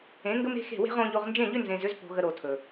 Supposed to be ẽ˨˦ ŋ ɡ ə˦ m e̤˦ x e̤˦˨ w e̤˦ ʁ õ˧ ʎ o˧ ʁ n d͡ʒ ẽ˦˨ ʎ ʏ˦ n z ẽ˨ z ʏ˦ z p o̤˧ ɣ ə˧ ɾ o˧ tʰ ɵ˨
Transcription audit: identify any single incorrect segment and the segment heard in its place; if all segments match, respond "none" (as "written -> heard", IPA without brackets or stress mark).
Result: none